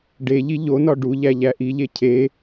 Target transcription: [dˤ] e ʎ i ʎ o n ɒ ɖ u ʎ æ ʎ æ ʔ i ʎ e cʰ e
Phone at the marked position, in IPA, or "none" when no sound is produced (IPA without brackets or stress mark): ɖ